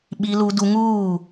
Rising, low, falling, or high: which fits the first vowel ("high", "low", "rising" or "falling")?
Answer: high